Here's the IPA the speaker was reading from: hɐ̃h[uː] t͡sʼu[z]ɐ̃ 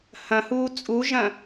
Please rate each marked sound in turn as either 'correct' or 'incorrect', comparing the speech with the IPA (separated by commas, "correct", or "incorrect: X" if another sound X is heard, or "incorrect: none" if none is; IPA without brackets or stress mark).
correct, incorrect: ʒ